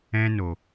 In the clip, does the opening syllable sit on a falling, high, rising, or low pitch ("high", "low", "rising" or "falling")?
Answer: high